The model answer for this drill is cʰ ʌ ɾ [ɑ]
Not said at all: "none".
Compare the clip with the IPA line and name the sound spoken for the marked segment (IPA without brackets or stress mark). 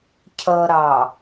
ɑ